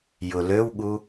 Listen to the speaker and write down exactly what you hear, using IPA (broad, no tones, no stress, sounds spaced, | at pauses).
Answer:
j ʊ l ø w ɠ u